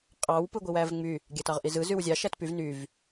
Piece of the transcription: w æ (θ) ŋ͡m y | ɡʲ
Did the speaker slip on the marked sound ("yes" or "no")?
yes